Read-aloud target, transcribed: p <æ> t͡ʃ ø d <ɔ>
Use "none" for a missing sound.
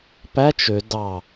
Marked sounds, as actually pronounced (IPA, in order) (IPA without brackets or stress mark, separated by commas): æ, ɑ